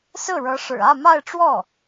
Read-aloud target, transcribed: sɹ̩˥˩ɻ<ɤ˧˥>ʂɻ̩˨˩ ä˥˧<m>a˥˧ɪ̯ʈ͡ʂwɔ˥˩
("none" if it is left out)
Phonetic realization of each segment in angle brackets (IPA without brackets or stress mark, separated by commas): ɤ˧˥, m